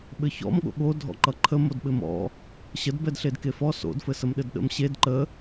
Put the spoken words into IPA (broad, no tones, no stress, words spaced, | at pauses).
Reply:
ɓɘçɔ̰m ɠo̰ɠo dʱɔ̰ǃʌǃʰə modɓɘmɔ̰ | ɕəd bɛdɬedkefɔ so̰d fɘsəmɗɘdɗə̰m ɕed ǃə